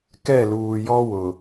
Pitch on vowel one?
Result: falling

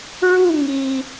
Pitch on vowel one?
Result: falling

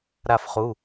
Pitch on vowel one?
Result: falling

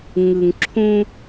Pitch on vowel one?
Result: low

